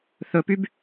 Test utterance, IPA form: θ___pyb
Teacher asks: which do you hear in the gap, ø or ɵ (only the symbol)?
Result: ɵ